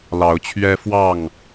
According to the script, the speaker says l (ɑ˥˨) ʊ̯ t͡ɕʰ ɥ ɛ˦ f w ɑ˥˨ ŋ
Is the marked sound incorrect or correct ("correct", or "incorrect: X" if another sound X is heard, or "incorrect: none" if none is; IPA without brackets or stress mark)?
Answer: incorrect: ɑ˨˦